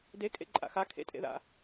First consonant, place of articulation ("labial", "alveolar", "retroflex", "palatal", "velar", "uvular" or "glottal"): alveolar